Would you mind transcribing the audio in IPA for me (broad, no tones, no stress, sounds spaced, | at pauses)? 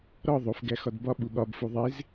ɾ ɒ ðˤ o f ɡ æ x ɒ d b ɒ ɓ u ɠ ɒ b f u ðˤ e z